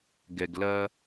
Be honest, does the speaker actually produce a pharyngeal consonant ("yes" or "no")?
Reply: no